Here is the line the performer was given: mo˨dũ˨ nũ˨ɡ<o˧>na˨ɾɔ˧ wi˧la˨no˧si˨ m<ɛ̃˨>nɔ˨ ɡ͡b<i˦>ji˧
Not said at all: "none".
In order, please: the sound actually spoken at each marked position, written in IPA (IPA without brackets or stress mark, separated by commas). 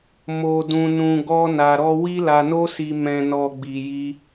ɔ˧, ɛ̃˨, i˨